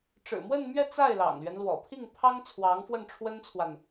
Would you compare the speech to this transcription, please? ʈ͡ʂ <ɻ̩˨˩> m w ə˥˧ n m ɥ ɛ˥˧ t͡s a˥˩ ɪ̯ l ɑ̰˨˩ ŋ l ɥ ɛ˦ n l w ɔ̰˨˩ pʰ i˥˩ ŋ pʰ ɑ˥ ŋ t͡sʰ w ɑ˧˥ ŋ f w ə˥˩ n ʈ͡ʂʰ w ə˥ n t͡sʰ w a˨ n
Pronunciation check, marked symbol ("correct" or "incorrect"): correct